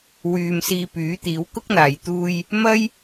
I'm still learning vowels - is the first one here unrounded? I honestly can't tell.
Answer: no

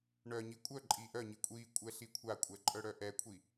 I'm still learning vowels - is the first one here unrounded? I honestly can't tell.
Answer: no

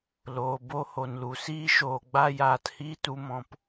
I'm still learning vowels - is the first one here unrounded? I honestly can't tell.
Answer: no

